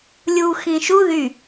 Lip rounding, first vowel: rounded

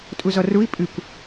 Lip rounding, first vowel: rounded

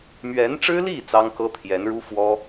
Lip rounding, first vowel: unrounded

